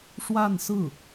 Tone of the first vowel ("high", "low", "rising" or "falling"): falling